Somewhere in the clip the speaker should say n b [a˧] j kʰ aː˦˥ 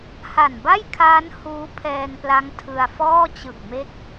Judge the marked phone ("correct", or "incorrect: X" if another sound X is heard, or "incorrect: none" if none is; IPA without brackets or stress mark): incorrect: a˥˩